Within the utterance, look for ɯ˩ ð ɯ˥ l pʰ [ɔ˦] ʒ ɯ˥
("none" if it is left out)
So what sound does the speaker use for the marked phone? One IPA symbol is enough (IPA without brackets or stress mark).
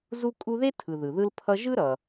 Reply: ʌ˦